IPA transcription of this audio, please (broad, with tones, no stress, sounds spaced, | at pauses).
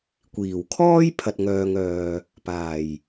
kʷ iː˨˩ w kʰ ɔː˥ j pʰ ɐ˨ t̚ ŋ œː˨ ŋ œː˨ | p aː˨˩ j